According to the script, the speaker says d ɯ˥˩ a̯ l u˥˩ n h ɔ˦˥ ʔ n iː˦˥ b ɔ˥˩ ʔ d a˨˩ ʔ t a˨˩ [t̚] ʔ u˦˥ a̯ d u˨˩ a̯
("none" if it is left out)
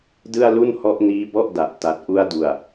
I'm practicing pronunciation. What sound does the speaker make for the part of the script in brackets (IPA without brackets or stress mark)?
t̚